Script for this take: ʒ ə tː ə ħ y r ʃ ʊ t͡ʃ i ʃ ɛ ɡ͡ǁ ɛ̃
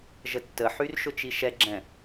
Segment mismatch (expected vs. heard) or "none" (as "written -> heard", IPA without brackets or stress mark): none